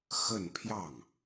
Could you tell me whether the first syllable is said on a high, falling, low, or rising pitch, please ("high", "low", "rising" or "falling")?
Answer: falling